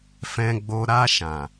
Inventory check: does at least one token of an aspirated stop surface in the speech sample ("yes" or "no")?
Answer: no